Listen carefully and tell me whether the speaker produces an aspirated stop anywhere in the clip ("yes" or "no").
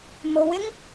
no